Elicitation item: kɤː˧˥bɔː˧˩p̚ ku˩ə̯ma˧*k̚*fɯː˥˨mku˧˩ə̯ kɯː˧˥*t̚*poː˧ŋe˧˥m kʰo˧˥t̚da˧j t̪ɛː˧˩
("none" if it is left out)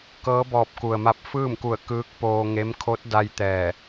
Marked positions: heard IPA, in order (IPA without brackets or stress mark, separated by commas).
p̚, k̚